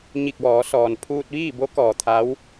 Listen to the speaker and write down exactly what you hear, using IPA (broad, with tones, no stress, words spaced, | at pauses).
ɲi˧˩k̚ ʋɔː˩˧sɔː˩n pʰuː˧t̚ʋiː˥˨bo˧˥kɔː˩ t̪ʰa˧˥w